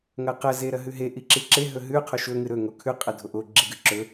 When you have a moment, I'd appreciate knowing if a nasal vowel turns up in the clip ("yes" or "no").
no